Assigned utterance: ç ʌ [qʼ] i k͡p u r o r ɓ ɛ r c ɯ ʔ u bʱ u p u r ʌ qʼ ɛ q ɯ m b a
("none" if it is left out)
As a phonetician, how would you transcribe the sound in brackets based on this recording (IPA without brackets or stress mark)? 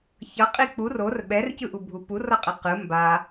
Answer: qʼ